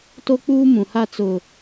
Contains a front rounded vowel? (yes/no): no